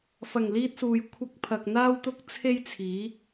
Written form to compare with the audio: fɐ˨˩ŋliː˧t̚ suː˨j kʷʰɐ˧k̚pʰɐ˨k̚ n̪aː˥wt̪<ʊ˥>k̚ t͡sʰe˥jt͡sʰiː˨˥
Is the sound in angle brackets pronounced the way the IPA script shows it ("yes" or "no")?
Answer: yes